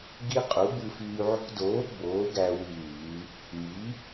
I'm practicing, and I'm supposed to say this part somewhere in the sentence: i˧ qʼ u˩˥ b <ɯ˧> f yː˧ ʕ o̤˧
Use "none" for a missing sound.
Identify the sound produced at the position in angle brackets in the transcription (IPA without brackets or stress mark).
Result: ɯ˧